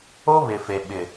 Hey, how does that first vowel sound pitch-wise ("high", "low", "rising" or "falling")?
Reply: high